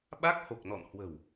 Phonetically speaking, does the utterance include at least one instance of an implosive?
yes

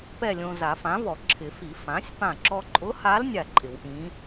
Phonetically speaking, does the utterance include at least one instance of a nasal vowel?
yes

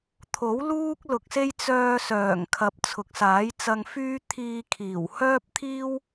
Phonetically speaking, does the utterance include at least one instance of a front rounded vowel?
yes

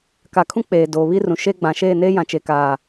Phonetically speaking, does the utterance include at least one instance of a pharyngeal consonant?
no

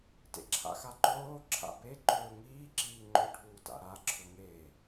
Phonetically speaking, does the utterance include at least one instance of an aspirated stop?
yes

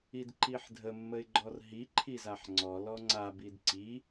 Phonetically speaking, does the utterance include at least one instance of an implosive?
no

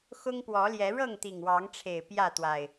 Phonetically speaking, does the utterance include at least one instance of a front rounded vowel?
no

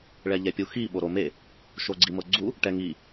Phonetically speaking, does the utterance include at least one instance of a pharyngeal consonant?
no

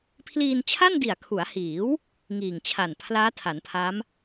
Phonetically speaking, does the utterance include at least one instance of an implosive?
no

